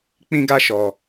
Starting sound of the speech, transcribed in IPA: k͡p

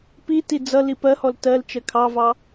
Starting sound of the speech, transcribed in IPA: p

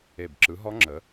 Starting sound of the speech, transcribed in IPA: e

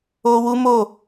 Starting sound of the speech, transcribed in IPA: o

